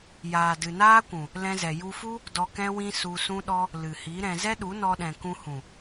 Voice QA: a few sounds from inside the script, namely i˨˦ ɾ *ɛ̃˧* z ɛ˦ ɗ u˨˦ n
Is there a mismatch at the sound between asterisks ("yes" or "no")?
no